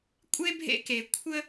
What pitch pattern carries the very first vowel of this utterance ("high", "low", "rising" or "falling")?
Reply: high